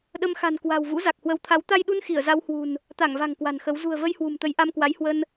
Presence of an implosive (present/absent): present